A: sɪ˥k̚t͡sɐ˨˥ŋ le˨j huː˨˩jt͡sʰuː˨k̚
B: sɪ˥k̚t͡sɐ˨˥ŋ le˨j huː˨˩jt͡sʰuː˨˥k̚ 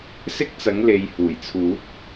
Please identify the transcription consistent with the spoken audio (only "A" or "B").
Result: B